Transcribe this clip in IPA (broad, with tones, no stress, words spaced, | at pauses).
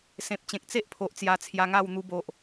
sẽ˨p̚t͡ɕẽ˨k̚ t͡se˦ʔpʰo˨ʔ t͡sja˧t͡sʰja˧ŋa˥˧w n̪u˧bo˨ʔ